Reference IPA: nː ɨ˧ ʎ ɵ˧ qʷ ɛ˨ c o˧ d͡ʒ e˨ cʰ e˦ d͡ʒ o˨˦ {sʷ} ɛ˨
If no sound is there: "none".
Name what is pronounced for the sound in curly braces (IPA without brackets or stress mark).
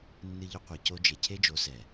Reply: s